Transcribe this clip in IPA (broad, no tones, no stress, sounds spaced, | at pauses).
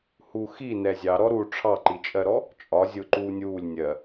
h u x i n ɛ zʲ ɑ ɾ ɔ ɾ u ʈ͡ʂʰ ɑ ǃ i t͡ʃʼ ɜ ɾ ɔ | t͡ʃʼ ɒ zʲ ʊ ǃ uː nʲ uː lʲ nʲ ɜ